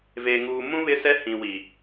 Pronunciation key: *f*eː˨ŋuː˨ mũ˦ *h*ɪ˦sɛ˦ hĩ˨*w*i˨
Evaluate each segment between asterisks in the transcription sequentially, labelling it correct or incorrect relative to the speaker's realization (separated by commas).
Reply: incorrect, incorrect, correct